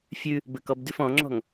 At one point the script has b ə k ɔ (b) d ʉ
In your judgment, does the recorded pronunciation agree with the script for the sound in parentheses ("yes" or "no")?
yes